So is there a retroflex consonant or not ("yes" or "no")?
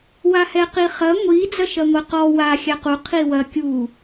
no